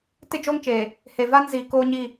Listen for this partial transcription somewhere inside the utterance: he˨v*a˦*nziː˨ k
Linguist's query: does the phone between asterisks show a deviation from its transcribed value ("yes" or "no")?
no